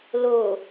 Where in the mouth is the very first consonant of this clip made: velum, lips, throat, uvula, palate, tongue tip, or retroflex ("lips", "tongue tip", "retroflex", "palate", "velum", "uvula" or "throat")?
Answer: tongue tip